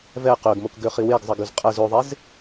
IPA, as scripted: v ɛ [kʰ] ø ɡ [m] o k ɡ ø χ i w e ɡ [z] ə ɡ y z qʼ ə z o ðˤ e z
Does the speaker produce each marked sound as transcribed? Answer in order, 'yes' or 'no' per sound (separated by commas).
no, yes, no